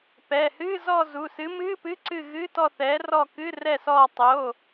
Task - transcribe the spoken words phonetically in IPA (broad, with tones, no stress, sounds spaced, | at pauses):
p ɛː˩˧˩ h ɨː˧˥˧ z ɔ˦˨ z u˩˧˩ s ɨ˨˥ m ɨː˧˥˧ p ɨ˧˥˧ ǀ ɨ˦˨ ɣ ɨː˧˥˧ t ɔ˦˨ θ ɛː˨˥ r ɔ˦˨ k ɨ˧˥˧ r ɛ˦˨ s ɔː˦˨ tˤ o˧˥˧